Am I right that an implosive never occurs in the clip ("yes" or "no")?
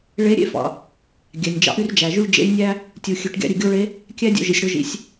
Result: yes